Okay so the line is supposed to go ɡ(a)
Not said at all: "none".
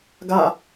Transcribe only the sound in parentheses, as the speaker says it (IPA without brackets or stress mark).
a